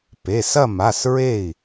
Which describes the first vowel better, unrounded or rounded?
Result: unrounded